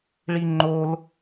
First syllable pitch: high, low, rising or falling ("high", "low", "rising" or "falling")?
high